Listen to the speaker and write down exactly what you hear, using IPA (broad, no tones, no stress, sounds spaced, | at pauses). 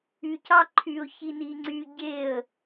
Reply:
y c ɑ ǃʰ y ʊ̯ ç i n i ŋ͡ǀ y ɟ e ə̯